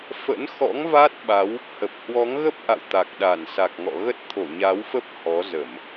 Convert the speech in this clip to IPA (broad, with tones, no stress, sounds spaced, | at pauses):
f ə̰˧˥ n x ɔ̰˧˥ ŋ v a˦˥ t̚ ɓ a˨˦ w | h ə˨˩ p̚ h w ɔ˨˦ ŋ ɣ ə˦˥ p̚ ʔ a̰˧˨ w t̪ a˨˩ k̚ ɗ a˧˩ n s a˨˩ k̚ ŋ ɔ̰˧˨ ɣ ə˦˥ t̚ t̪ʰ o˧˩ ɲ a˨˦ w f ə˦˥ p̚ h ɔ˨˦ z ə˧˩˨ m